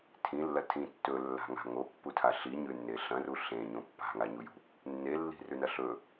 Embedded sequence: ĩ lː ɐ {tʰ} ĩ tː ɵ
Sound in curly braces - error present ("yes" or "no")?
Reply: no